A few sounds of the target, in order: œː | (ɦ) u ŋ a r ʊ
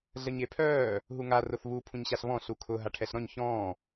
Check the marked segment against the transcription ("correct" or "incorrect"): correct